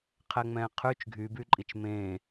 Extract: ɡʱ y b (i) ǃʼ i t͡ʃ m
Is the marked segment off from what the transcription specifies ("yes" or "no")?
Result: yes